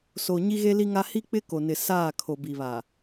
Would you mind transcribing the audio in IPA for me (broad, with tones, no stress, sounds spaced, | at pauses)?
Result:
s o˨ ɲ i˦ ɣ e˦ l i˦ ŋ a˦ h i˦ k͡p ɪ˦ k o˨ n ɪ˨ s aː˦˨ kʰ o˨ b i˨ β a˨